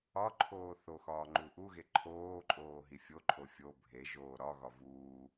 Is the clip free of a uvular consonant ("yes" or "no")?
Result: yes